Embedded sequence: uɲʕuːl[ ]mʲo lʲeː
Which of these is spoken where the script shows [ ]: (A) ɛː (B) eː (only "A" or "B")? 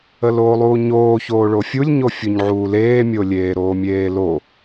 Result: B